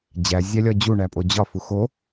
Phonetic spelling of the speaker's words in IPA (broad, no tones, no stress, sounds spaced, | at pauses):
d͡ʑ æ zʲ æ lʲ ɒ d͡ʑ u ɳ æ pʼ o d͡ʑ ɒ f u x o